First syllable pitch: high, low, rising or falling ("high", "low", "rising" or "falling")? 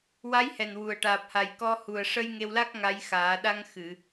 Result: rising